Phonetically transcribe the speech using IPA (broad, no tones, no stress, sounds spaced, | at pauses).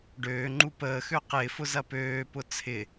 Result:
ɖ øː ŋ͡ǃ u p əː x ø q ɪː f ʊ z ɐ p øː p ʊ t͡sʰ ɪ